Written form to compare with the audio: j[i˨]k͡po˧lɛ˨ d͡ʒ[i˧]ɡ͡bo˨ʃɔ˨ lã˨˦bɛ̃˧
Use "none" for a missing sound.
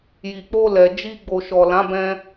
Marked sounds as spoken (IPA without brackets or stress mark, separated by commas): i˨, i˧